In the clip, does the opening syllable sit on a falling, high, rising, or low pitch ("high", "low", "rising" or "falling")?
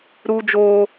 high